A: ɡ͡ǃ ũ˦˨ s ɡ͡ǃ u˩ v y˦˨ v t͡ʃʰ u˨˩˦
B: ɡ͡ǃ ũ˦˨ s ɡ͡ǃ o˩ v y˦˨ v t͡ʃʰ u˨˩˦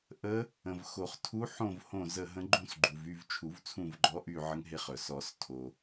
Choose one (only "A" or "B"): A